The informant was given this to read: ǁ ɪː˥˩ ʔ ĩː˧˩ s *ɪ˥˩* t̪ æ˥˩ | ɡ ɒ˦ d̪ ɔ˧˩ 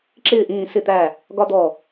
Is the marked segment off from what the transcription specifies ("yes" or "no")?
no